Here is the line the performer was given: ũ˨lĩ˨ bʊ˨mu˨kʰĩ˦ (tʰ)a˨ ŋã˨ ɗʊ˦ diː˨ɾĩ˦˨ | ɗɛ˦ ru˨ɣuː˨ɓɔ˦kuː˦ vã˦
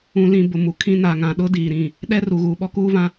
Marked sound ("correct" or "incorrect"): incorrect